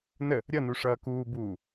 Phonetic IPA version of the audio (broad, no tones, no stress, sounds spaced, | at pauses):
n ə | ɾʲ ʌ n u ʂ ʌː k uː b uː